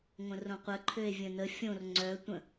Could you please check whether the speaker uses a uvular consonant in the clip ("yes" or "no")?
yes